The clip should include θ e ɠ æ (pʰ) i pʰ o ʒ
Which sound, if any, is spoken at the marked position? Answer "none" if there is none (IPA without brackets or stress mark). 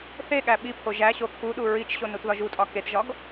ɓ